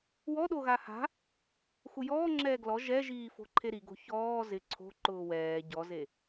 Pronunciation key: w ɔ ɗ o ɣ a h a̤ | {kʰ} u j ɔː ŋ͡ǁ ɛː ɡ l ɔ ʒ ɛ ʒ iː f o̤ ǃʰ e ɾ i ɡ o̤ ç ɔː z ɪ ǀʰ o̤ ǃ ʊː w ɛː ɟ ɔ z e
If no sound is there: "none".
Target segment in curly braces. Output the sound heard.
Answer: x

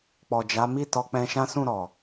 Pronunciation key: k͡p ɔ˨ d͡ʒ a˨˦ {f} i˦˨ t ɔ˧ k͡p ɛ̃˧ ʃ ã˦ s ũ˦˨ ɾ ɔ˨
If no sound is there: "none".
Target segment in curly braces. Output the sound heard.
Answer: m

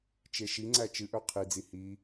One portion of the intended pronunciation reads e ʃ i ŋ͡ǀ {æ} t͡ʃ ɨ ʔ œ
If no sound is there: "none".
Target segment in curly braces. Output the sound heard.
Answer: æ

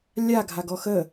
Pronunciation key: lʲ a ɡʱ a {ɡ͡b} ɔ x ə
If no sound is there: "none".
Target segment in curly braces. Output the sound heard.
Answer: ɡ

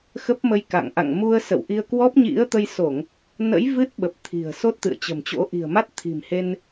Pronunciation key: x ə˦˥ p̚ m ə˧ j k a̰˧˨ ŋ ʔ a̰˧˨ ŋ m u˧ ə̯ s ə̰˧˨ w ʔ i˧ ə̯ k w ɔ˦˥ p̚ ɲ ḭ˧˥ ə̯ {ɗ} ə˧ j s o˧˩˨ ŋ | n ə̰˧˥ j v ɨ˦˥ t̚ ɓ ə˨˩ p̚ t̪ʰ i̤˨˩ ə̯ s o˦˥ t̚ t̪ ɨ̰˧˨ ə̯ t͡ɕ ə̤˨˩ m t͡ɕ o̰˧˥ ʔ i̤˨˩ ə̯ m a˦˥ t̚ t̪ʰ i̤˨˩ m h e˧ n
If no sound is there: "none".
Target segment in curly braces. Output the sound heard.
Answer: t̪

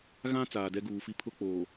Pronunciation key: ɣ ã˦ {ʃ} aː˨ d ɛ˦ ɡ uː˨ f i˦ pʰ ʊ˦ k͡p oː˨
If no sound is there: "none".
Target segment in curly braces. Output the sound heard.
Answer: t͡s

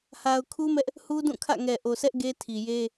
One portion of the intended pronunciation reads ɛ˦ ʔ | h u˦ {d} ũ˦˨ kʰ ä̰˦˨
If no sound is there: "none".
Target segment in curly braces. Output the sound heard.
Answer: d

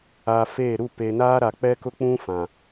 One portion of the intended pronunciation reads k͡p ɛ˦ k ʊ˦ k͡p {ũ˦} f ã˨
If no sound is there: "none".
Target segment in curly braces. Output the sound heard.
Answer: ũ˦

